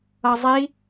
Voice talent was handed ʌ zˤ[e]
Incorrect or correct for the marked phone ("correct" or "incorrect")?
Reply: incorrect